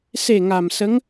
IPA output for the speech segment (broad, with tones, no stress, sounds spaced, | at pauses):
s e˨˩ ŋ a˨˩ m s ə˧˥ ŋ